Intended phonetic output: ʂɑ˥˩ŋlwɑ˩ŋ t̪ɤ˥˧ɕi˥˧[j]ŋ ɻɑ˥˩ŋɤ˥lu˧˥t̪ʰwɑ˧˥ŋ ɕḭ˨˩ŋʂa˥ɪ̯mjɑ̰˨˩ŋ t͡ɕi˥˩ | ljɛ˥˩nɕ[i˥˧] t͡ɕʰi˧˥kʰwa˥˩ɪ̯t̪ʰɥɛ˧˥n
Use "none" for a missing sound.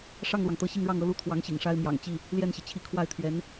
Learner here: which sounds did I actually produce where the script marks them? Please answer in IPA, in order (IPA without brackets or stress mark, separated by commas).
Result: none, i˩